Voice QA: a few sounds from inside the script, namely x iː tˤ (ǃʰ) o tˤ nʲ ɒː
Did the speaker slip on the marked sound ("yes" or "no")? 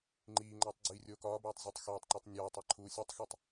yes